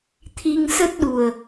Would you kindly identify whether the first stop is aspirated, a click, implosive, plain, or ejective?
aspirated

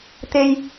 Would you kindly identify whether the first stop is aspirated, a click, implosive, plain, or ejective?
plain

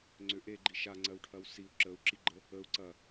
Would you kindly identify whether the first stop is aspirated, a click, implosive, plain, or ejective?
click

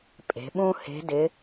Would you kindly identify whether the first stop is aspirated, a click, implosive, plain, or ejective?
ejective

